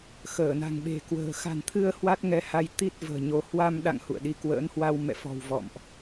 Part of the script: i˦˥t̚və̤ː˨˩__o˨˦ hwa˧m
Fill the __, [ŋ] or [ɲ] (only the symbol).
ɲ